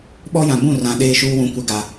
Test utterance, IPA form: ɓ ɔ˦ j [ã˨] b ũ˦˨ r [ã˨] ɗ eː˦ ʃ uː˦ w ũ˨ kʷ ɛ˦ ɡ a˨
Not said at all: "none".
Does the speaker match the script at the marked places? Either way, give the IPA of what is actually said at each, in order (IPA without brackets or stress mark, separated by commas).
ã˨, ã˨